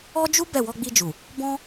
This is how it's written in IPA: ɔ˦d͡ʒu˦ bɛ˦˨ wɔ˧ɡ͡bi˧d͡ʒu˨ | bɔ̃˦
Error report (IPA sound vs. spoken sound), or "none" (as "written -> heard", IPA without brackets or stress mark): none